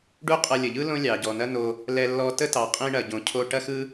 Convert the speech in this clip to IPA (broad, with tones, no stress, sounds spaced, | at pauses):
ɖ u˥ qʼ ɐ˧ lʲ ə˩ ʎ ɯ˥ l õ˥ lʲ ɑ˩ ɟ ɔ˩ n ɐ˥ n o˧ | l ɛ˧ lː ɔ˧ t ə˥ t ɑ˩ qʼ ĩ˧ ɳ ɐ˩ ɟ õ˩ cʰ o˧ ʈ ɐ˥ x ɯ˥